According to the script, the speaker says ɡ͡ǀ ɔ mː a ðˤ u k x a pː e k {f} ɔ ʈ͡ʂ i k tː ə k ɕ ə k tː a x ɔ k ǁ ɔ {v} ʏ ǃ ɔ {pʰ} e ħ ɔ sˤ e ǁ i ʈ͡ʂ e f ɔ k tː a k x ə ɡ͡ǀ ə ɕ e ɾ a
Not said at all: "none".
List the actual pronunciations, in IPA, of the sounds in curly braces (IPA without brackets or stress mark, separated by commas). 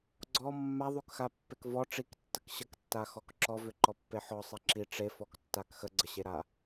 v, v, pː